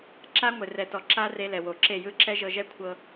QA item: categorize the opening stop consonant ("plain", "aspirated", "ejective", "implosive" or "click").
click